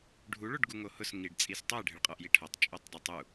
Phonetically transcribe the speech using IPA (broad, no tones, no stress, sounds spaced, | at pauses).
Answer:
ɖʱ u ɭ o ɖ ɡ u ŋ o h ʊ s ŋ i ɖ t͡sʼ i s tˤ ɛ ɖʱ ɪ ɭ qʼ ɔ ʔ j i ʈʰ ɔ tˤ t͡ʃʼ o tˤ dˤ i tˤ u